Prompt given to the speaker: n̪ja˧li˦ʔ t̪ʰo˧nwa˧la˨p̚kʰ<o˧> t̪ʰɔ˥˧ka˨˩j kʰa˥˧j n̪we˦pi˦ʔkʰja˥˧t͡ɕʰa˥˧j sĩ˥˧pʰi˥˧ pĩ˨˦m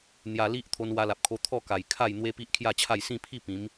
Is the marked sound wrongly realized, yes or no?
no